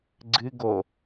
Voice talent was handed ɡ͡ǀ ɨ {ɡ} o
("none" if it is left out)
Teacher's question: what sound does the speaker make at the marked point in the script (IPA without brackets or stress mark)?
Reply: ɡ